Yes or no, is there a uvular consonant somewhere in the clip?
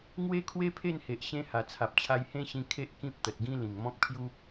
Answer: no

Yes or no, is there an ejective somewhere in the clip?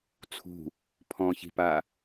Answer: no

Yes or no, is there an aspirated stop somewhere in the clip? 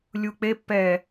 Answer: no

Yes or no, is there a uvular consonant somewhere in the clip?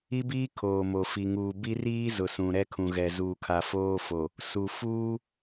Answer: no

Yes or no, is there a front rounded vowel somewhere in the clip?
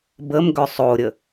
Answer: yes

